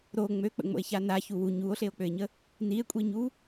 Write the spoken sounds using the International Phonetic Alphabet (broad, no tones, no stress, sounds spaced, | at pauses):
ɾ o ŋ͡m ø k͡p ə̰ ŋ͡m o̰ e̯ ç a n a ç u w u ɲ u o̯ ɬ e o̯ k͡p ø e̯ ɲ ə | n i e̯ kʷʼ i ɲ u